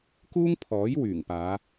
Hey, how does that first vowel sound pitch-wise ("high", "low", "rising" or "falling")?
high